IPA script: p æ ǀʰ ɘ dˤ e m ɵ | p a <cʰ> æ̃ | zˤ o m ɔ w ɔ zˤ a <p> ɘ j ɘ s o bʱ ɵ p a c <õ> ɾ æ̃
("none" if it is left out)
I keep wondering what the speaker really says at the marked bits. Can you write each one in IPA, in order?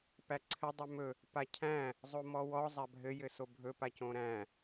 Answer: cʰ, bʱ, õ

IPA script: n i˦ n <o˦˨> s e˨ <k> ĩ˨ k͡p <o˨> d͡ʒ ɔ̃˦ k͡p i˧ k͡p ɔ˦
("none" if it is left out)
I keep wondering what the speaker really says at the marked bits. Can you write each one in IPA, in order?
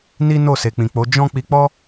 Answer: o˦˨, k͡p, o˨˦

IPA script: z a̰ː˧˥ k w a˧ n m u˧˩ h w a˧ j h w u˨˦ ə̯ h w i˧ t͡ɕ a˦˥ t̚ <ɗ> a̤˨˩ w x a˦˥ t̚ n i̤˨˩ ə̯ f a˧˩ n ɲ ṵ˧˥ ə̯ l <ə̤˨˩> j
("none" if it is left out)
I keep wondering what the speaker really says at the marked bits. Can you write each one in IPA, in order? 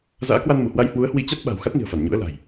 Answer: ɓ, a̤˨˩

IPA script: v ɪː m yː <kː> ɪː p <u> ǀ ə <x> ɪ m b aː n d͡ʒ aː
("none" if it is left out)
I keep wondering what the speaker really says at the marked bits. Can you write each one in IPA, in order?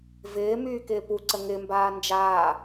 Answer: k, u, ŋ

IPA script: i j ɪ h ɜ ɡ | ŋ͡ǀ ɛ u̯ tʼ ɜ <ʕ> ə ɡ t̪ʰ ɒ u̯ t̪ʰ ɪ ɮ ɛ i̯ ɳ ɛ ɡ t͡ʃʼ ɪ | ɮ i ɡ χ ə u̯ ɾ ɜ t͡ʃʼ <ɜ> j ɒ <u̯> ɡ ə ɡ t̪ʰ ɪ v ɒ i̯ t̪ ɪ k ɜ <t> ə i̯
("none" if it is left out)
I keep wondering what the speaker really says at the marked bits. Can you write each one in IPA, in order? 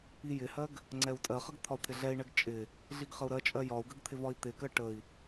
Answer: χ, ɜ, u̯, ʈ

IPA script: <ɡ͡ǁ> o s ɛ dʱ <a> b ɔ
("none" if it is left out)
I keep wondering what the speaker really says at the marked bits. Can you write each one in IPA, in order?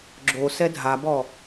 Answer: ɡ͡ǁ, a

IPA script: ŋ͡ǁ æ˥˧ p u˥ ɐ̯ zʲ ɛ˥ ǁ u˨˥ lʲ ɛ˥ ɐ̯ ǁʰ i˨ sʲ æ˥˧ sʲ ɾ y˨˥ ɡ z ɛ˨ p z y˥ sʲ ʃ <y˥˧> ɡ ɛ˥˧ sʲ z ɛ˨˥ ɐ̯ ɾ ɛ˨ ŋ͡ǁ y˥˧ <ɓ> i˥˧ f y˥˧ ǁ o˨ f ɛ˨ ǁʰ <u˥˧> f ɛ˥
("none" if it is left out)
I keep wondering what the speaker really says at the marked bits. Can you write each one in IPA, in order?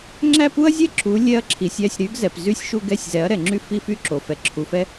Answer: u˥˧, f, u˨

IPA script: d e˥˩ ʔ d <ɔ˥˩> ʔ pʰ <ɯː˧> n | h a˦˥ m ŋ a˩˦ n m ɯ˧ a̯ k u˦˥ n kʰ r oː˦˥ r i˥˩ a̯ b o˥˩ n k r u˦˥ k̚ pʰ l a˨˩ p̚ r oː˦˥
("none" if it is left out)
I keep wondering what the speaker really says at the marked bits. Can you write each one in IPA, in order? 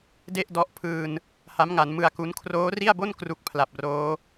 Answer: ɔ˦˥, ɯː˧

